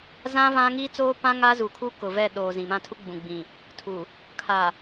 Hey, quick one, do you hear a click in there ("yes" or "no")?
no